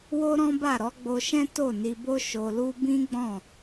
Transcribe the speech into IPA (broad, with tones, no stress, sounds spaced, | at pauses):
w o˦ ɾ ɔ̃˦ b a˦˨ ɾ ɔ˨˦ ɡ͡b o˧ ʃ ɛ̃˦ t o˦˨ n i˧ b o˦ ʃ o˧ l u˦ b ĩ˦ ɡ͡b ɔ̃˦˨